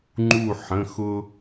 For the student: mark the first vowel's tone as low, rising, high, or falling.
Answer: falling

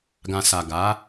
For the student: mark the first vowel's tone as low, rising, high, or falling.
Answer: low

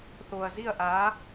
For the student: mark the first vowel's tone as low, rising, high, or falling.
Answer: low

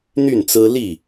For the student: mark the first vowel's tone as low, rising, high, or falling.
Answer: falling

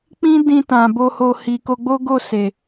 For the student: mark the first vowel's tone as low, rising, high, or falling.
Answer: high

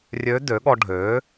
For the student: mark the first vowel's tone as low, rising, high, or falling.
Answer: rising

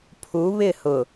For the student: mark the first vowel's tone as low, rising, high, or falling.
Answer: rising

